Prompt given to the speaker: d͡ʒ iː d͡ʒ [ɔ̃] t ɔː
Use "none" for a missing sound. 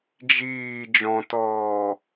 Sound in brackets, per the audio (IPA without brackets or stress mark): ɔ̃